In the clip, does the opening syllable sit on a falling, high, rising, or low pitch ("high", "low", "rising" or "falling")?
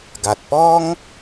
low